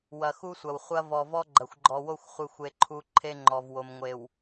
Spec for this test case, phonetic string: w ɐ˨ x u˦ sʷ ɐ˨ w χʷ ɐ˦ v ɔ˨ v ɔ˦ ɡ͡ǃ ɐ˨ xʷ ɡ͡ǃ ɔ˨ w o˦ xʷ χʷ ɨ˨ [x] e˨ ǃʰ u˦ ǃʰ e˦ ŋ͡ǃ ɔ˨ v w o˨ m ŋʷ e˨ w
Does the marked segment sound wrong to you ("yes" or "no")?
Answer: yes